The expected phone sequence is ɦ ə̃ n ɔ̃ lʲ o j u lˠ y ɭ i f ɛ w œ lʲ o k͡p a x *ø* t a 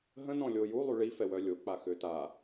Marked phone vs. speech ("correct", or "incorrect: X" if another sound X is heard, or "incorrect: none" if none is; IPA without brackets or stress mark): correct